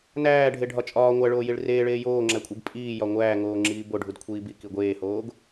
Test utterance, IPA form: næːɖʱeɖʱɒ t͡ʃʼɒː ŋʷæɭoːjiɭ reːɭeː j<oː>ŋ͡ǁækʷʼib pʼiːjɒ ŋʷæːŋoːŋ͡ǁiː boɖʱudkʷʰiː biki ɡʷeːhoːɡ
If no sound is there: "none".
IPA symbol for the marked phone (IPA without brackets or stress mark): oː